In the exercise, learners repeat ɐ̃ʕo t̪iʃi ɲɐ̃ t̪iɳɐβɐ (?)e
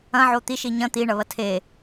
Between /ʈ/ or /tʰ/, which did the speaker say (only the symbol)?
tʰ